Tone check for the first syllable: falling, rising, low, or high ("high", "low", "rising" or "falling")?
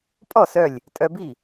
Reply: falling